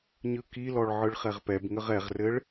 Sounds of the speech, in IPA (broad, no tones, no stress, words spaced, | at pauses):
ɲɯkilɔɭ ʕɯɭχɛʁpɛbŋəʁ ɛʁrɘɭ